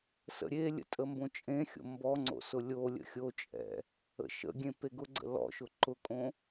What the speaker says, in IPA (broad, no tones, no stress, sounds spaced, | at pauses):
s ə̰ ɾʲ e lʲ ə̰ tʼ ə m b õ t͡ʃʼ ẽ xʲ o̰ m b ɔ ŋ͡ǀ o̰ s ʊ lʲ o lʲ ə̰ xʲ o t͡ʃʼ ɛ̰ | ə̰ ʃ ə̰ ɡʲ ẽ p e ɡ ʊ ɡ͡ǀ ə̰ l ɔ̰ ʃ ʊ ǃ ʊ kʼ õ